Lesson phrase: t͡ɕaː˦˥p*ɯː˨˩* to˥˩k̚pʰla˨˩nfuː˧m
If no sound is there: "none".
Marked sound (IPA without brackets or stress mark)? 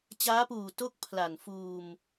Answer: uː˨˩